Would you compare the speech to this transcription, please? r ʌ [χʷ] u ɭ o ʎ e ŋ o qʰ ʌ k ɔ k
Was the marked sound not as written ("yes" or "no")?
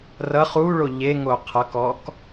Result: yes